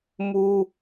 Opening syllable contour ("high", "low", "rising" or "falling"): high